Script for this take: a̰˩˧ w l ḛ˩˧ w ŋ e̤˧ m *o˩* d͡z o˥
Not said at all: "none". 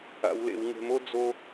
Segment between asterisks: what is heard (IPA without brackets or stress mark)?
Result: o˥